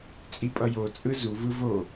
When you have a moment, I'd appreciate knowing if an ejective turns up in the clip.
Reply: yes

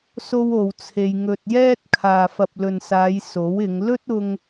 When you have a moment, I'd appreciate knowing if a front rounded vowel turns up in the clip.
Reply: no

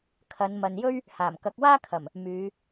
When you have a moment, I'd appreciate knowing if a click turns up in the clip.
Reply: no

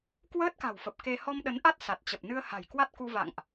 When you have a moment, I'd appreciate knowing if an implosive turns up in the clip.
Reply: yes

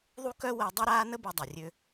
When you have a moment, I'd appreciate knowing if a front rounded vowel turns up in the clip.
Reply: yes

